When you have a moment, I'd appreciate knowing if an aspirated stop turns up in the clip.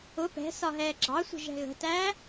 no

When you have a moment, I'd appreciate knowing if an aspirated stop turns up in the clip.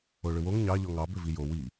no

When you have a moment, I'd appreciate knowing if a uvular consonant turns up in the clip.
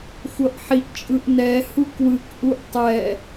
no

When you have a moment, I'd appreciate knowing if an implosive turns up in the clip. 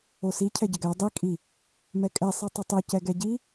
no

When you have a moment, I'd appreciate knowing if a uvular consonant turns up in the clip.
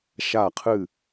yes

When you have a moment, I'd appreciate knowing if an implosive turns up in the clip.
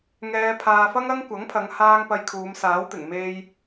no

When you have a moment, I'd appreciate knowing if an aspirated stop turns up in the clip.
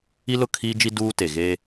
yes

